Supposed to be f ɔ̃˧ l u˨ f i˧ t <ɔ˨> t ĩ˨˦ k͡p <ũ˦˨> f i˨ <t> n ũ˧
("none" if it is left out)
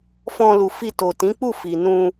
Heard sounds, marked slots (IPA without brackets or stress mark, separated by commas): o˨, u˦˨, none